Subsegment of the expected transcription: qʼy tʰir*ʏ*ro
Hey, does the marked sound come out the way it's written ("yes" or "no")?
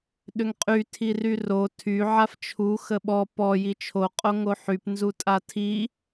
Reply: no